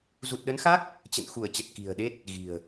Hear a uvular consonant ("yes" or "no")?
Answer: no